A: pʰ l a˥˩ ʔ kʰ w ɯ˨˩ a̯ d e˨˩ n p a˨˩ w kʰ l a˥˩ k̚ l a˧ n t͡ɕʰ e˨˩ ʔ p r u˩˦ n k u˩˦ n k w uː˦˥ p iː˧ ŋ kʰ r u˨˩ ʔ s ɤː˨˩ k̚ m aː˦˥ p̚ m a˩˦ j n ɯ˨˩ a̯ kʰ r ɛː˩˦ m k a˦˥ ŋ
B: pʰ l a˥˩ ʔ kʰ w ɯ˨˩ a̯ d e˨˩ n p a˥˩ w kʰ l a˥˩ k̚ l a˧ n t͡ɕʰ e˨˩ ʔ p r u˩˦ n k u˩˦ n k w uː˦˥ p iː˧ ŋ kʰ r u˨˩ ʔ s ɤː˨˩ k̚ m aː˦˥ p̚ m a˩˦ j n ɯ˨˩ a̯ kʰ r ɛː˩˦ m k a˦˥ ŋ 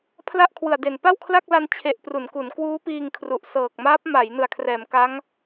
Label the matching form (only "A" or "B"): B